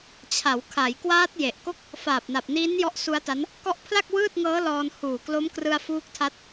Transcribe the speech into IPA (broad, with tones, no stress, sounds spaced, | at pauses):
t͡ɕʰ a˩˦ w kʰ a˩˦ j k w aː˦˥ t̚ j e˨˩ ʔ k o˥˩ k̚ | f aː˨˩ p̚ n a˨˩ p̚ n iː˦˥ n j ɔ˦˥ ʔ s u˦˥ a̯ t a˦˥ n | k ɔ˦˥ ʔ pʰ l a˥˩ k̚ w ɯː˥˩ t̚ ŋ ɤː˦˥ l ɔː˧ n h uː˨˩ k l o˦˥ m k r ɯ˧ a̯ f uː˦˥ k̚ tʰ a˦˥ t̚